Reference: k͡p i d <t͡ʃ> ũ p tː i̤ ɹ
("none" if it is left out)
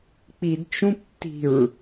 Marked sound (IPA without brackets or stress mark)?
t͡ʃ